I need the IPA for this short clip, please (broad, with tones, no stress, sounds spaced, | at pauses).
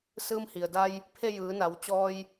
s ɯː˧ m h i˩ ə̯ d a˧ j | pʰ e˥˨ j ɯː˩˧ n a˩˧ w t͡ɕ ɔː˧ j